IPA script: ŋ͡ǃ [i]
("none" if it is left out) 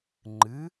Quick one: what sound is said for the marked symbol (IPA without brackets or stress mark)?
ɨ